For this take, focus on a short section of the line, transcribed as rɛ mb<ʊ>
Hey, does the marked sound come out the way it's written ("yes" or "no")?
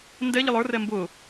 yes